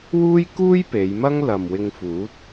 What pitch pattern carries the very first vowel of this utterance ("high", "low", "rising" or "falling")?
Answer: high